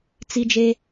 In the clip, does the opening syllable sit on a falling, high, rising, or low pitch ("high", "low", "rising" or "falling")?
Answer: low